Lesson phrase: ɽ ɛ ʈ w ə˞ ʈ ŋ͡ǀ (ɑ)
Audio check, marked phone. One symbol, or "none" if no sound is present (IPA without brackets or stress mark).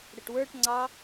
ɑ